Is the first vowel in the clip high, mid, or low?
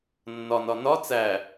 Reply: low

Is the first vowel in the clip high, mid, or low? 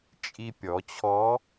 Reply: high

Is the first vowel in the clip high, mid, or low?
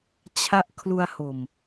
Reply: low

